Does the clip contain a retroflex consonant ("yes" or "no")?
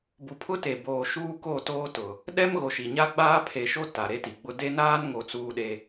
no